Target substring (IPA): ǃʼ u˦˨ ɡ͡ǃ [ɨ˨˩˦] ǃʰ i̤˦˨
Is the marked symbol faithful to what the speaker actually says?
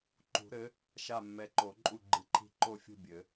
yes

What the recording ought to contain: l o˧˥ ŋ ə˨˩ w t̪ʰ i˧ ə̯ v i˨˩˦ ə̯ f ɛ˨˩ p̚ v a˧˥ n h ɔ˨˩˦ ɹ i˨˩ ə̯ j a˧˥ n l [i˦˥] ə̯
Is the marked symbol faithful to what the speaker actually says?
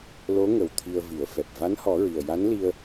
no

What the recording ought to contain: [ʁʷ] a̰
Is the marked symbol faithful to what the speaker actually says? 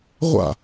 yes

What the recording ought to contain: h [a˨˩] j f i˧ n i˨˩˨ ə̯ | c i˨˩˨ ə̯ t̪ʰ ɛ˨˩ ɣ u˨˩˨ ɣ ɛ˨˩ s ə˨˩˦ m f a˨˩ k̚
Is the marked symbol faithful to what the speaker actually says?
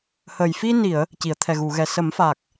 no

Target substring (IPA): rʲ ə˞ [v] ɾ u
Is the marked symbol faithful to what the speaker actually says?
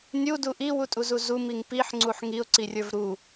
yes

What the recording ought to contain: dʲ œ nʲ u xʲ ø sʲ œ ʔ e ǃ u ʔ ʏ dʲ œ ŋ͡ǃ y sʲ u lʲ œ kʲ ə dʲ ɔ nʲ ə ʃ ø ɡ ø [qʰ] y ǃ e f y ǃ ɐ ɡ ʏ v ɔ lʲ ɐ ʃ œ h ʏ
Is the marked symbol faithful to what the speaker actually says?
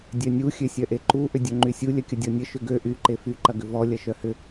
no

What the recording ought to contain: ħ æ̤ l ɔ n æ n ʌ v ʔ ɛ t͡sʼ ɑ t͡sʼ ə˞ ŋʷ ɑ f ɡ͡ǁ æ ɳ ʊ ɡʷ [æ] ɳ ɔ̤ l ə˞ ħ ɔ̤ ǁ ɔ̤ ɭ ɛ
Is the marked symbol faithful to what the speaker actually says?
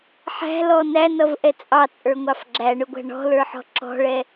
no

